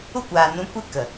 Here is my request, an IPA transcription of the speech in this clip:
u˦kʷaː˨nũ˨˦ kʷe˦ kə˨

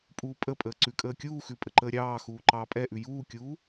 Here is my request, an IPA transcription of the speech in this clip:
pʼuːpʼəpʼəː ǀʉkʼəːkʲuːxʉ pʼəǃəːɾʲɑːxuː ǃɑːpʼɛʔʉ juːkʲuː

